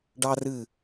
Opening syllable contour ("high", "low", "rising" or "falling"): high